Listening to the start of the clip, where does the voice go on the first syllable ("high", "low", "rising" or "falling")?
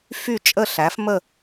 falling